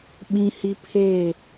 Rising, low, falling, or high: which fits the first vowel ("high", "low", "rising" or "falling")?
high